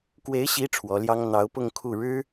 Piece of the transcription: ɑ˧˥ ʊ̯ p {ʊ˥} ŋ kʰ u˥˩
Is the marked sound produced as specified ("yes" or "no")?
no